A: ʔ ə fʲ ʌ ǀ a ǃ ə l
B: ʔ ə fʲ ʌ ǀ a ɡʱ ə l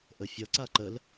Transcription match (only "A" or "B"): A